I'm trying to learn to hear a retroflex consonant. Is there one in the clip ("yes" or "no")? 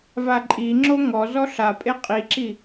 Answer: no